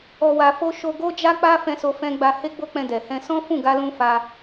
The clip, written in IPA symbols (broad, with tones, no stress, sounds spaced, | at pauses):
ɔ˧ w a˧ f o˦ ʃ o˧ ɡ o˦ d͡ʒ a˦ k͡p a˦ f ɛ̃˦ s o˦ f ɛ̃˦ ɡ͡b a˧ h e˦ ɡ͡b o˦ k͡p ɛ̃˧ d ɛ˨ h ɛ̃˧ s ɔ̃˦ f ũ˦˨ ɡ a˧ l ũ˧ f a˧